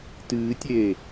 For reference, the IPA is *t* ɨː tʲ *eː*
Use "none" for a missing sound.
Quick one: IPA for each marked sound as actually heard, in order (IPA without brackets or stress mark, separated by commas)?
t, eː